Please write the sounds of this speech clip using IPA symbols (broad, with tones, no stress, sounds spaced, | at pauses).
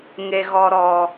ŋ e˨ ɣ ɔ˨ ɾ ɔ˨